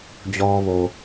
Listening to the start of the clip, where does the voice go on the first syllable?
low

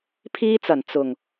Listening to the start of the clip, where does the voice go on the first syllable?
high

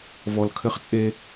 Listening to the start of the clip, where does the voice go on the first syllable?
low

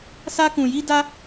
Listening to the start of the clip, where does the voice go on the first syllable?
high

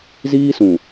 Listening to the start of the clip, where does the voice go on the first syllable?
high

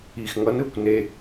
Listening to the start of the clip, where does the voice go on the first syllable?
low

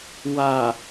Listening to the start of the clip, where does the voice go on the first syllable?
low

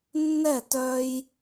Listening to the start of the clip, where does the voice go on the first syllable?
falling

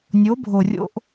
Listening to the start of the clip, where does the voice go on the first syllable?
rising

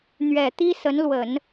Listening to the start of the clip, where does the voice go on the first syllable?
low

